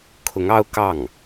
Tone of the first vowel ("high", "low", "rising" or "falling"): rising